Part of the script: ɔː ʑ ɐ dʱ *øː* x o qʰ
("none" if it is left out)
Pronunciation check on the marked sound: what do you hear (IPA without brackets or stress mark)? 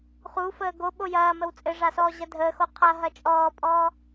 əː